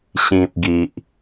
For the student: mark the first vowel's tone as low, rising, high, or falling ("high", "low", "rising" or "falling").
low